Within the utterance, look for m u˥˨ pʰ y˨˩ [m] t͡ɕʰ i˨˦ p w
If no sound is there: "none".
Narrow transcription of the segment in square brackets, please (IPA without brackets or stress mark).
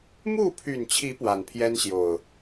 n